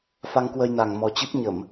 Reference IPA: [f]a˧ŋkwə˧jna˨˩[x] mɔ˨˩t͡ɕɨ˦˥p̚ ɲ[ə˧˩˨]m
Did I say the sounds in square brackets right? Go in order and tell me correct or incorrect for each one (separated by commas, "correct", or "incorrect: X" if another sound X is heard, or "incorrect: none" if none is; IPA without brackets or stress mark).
correct, incorrect: ŋ, correct